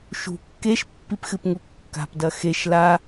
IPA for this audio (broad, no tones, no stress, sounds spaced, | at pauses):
ʃ ṳ kː e ʃ pː i p x ɨ p ŋ u kː a̤ p d ɐ x e ʃ l a